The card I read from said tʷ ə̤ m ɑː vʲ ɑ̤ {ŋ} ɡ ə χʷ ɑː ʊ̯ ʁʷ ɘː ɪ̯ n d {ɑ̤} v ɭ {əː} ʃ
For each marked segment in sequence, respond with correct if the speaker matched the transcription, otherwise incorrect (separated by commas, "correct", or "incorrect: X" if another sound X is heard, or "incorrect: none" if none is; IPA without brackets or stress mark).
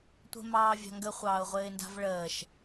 correct, incorrect: a̤, correct